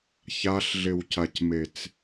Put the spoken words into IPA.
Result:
ç a ɬ ɮ ɪ w c a c m e t͡s

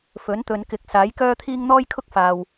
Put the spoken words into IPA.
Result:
f ɵ˨˥ n t̪ ɵ˨˧ n k ɪ˨˥ k̚ s aː˨˥ j k œː˥ t̪ʰ iː˥ ŋ n̪ ɔː˥ j kʰ ʊ˥ k̚ f aː˨ w

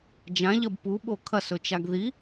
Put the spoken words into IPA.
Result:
d͡ʒ ã ʎ ɐ b p u ɓ o kʰ ɐ s ɵ t͡ʃ a ɡ ð i

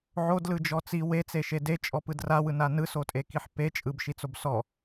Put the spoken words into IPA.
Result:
ʕ o d l ɯ d͡ʒ ɔ t͡s i w e t͡s e ʃ e d e t͡ʃʼ ɔ p ɯ d r a w ɯ n a n ɯ s o tʼ e k i ħ p e t͡ʃʼ ɯ b ʃ i t͡s o b s ɔ

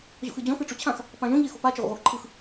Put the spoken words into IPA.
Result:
ʑ o̰ x ɨ d͡ʑ ɔ̃ x ɯ ʈ͡ʂ o t͡ɕʰ ã x | p ã ʒ õ ʎ e x o̤ p a t͡ʃ e ʁʷ ə̰ ʁʷ e x ǃʰ ɯ x

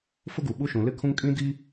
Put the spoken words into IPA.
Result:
f ʊ˦ ɡ u˨ ɓ u˦ ʃ ũ˨ l ɪ˦ kʰ ũ˦ ŋ kʼ ĩ˦ d i˦

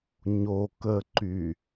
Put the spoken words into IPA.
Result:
ɲ o k ə ǃ y

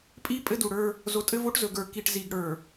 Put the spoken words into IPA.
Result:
pʼ i˦ pʼ ɘ˦ d u˨ ɽ ə˞˦ | z o˨ tʼ ɘ˦ v o˦ ʈ z ɵ˨ ɡ ə˞˨ k i˨ ʈ z i˨ ɡ ɽ ə˞˨

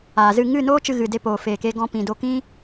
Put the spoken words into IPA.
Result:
aː˨ z ɨ˦˨ ŋ ɨ˦˨ n oː˦ t͡ʃ ɨ˧ ɣ ɨ˨ d e˧ p oː˨ f eː˨ k e˧ ɡ ɔ̃˧ p ĩ˧ d o˧ k ĩ˦

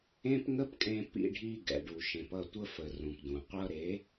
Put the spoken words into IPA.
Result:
ẽ˦ p ŋ ə˦ p kʼ ẽ˧ p ḭ˧ ɖʱ i˧ ɡ ɛ̰˨ ɖ u˨ ʃ ẽ˨ p ʌ˦˨ tʷ ə˦ f ə˨ r ũ˨ p d ũ˨ qʷ ʌ˦ ɾ e˨˦

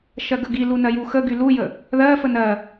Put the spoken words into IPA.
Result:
ʃ ɜ ɡ ə ɡ i l u n ɜ j u x ə ɡ y l u j ə | ð ɜ f ə n ɜ

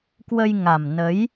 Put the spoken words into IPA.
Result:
k w ə˧ j ŋ a˨˩ m n ə˨˦ j

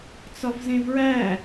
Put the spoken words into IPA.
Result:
t͡s ɒ v z ẽ v ɹ æ

